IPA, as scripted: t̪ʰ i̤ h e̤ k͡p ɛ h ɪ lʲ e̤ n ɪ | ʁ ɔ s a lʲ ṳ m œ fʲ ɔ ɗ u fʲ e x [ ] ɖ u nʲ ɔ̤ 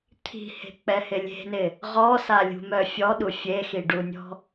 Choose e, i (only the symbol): i